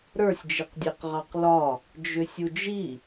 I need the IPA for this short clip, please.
ɾə˞sʲd͡ʒiqdʲeq ʁɑqlɒ | d͡ʒʏsʲud͡ʒi

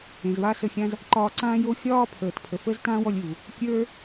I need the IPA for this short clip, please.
ẽ˩zβa˥sə˧xʲã˥z | ǃɒː˧ǀãː˥jo˥ xʲɒː˥pʰəː˩tpʰə˩fə˥z tãː˥wɔ˧lʲu˩ | kʲə˞˥

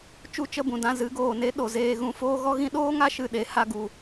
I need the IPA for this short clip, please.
t͡ʃu˦˨t͡ʃə˦˨bũ˨ dã˦ zɨ˨˦ɡoː˨ne˦ ɗo˨zeː˧ ɣũ˦ foː˦ɣɔ˦ɣĩ˦ ɗoː˦ŋa˦ ʃɨ˧ɗe˨˦ ha˧ɡu˨

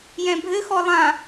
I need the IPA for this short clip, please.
jɛ̃bʱɘxɔ lˠã

